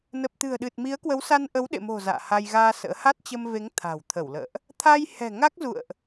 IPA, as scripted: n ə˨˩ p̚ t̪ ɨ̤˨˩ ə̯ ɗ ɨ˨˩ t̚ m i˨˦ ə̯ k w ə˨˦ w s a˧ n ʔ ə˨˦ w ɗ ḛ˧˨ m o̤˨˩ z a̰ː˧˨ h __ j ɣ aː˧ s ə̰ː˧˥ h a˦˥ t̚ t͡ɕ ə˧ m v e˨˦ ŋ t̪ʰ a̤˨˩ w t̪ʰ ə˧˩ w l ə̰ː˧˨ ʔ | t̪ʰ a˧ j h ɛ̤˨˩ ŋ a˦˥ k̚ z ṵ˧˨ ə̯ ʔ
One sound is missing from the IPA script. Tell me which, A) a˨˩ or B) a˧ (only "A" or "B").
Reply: B